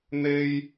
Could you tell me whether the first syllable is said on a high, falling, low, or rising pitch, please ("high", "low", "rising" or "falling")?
high